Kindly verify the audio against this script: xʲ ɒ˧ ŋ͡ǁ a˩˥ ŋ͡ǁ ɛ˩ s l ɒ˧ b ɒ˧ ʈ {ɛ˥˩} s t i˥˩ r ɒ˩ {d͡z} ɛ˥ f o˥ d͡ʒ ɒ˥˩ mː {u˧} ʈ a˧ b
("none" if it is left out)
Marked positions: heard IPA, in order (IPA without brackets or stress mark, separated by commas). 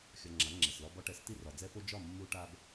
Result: ɛ˩˥, d͡z, u˧